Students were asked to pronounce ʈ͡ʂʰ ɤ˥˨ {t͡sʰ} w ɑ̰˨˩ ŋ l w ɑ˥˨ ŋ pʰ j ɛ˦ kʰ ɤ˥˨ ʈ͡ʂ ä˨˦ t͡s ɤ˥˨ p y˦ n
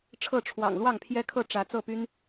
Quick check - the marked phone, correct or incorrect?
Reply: incorrect: ʈ͡ʂʰ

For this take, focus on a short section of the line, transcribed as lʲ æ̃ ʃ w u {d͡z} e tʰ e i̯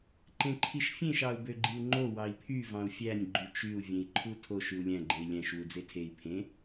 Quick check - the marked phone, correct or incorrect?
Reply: correct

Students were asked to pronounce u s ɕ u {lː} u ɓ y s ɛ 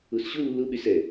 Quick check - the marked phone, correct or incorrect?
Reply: correct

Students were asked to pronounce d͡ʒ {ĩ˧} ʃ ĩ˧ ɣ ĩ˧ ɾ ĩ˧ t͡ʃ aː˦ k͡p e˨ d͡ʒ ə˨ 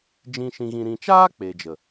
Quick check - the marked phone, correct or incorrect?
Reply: correct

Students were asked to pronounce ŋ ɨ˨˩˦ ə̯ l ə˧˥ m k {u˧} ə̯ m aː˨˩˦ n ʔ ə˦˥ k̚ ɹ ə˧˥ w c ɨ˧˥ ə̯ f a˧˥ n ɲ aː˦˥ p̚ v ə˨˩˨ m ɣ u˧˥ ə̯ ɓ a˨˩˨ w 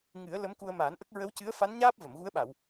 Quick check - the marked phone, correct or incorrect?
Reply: correct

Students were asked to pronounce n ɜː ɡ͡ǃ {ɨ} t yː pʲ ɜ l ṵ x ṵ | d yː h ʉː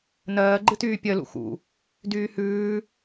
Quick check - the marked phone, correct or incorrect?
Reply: correct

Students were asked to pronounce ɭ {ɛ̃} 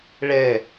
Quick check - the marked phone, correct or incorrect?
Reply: incorrect: ɛ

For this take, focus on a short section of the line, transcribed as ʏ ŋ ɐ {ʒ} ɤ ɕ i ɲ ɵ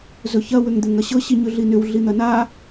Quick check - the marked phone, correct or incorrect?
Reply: incorrect: ɕ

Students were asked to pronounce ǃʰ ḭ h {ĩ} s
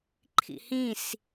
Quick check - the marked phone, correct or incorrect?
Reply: correct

